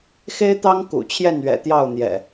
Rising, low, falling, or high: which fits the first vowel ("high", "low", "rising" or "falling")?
high